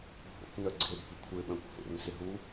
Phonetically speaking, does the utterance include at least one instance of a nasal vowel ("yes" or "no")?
yes